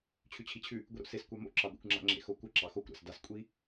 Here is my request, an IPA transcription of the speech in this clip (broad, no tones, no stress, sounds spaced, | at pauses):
t͡ɕʰ ʉ t͡ɕʰ i t͡ɕʰ ʉ | ɡʷ i ɾ o̰ s e s kʷ ɑ m o̰ ǁ ɑ ɡʷ ḛ kʷ ŋ͡ǁ a̰ ŋ͡ǁ ḛ x o kʷ ə ǁ ɑ x o kʷ ɾ a̰ s d a s kʷʼ i